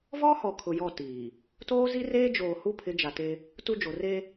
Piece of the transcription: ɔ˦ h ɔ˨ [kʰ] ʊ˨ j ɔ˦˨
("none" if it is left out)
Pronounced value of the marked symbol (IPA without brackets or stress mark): kʰ